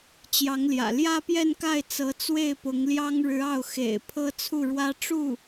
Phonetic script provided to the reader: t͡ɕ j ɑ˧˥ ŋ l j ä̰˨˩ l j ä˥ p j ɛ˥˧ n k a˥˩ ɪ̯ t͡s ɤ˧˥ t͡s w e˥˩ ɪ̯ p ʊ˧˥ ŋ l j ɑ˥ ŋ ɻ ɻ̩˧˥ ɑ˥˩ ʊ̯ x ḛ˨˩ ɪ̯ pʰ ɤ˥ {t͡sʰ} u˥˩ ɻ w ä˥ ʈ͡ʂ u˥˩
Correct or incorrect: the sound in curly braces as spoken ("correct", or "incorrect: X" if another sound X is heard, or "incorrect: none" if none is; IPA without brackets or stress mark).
correct